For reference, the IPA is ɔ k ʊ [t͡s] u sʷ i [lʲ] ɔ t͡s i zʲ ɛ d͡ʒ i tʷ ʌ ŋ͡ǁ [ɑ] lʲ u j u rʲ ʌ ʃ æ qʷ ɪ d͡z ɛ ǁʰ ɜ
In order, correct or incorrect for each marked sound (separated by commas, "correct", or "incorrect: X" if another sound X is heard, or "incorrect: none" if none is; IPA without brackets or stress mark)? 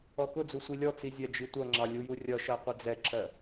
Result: incorrect: d͡z, correct, correct